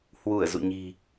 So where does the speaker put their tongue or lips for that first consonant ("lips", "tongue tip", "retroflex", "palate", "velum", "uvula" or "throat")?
throat